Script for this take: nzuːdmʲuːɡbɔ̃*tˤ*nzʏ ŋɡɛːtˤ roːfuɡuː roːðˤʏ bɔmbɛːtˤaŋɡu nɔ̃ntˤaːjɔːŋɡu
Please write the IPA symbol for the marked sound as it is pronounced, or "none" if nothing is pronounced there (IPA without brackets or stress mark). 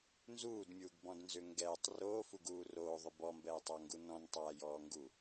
d